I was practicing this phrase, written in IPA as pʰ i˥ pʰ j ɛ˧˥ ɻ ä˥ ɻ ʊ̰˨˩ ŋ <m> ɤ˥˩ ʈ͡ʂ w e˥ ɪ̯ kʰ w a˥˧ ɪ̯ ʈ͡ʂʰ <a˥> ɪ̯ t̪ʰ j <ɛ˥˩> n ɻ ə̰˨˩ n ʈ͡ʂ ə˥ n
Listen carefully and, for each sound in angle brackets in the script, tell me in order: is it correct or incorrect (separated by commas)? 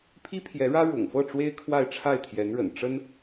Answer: incorrect, incorrect, incorrect